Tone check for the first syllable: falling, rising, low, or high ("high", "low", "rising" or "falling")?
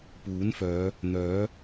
rising